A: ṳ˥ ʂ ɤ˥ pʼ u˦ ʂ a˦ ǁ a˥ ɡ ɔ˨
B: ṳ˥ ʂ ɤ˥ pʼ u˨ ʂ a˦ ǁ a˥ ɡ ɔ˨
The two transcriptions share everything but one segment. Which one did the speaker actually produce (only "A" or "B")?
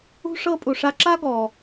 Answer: B